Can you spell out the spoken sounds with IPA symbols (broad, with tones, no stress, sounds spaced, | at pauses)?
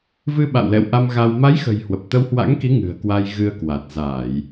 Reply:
v ɨ˧ ɓ a̰˧˨ w l ɛ̰˧˨ w ʔ a˧ m ɣ a˧ w m a˨˦ j x ə̤˨˩ j h w ə˨˩ p̚ t̪ ə˧ w h w a̰˧˥ ŋ k i˨˦ ŋ ɨ̤˨˩ ə̯ k w a˧ j ɣ ɨ˧ ə̯ k w a˨˩ t̚ z aː˧˩˨ j